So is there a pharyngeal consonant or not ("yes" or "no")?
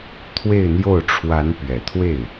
no